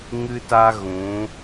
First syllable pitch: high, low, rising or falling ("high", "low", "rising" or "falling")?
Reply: high